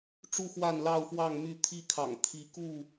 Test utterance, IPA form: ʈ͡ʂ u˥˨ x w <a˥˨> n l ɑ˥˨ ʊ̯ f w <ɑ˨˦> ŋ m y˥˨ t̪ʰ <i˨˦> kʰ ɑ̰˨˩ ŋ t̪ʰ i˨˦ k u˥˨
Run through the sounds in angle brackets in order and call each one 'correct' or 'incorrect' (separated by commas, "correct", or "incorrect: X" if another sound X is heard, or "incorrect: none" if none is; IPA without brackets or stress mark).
correct, incorrect: ɑ˥˨, incorrect: i˥˨